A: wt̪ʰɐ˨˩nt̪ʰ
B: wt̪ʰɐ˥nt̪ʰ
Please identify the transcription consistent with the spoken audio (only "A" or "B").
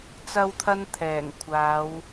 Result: B